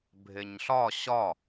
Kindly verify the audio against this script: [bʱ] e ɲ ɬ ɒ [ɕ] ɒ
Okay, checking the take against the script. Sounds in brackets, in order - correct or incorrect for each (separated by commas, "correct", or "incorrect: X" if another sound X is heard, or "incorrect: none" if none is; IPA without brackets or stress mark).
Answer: correct, correct